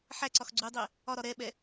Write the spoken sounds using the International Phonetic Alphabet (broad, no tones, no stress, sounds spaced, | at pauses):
ħ æ ǀ ɒ x ɡ͡ǀ u dˤ ɛ | ɒ ɾ ɒ ɾ ɛ ɓ ɛ